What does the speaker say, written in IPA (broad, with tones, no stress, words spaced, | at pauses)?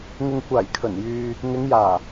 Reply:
ŋɪ˨ŋkʷaː˨˩jkʰɵ˨˩n jyː˨ | ŋɪ˨˧ŋjaː˨˩